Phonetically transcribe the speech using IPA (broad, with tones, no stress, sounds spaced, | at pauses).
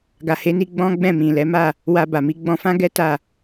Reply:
ɡ a˨ h e˨˦ n i˧ ɡ͡b ɔ̃˦ ɡ͡b ɛ̃˦˨ m ĩ˨ l ɛ˨˦ m a˦˨ | w a˧ b a˨ m i˨˦ ɡ͡b ɔ̃˧ f ã˦ ɡ ɛ˦ t a˦˨